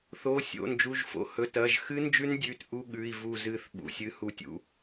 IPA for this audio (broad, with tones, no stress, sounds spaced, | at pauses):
θ o˩˧˩ sʲ o̰˩˧˩ n d͡ʒ u˩˧˩ ʒ f o̰˩˧˩ h ɵ˩˧˩ t ɐ˩˧˩ ʒ x ɨ˦˥ n d͡ʒ ʉ˦˥ n dʲ ʉ˩˧˩ t ʔ u˦˥ ɠ ʉ˩˧˩ i̯ v u˥˨ z ɨ˥˨ θ ɓ ṵ˩˧˩ sʲ ɨ˦˥ h u˦˥ tʲ ṵ˦˥